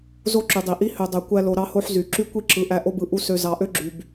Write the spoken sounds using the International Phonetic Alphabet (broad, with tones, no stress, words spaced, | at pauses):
zo˦ǁy˨dˤi˨ʔi˦ hø˨dˤø˨kʷæ˧lo˨ ɾɑ˦ho˦ħzy˨ ǁy˦kʷi˦ ǁɯ˨ʔæ˧ ʔo˦bɯ˧ ʔu˧ sø˨ zɑ˨ʔø˦ɡ͡ǁy˨b